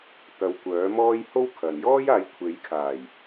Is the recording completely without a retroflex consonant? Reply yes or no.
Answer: yes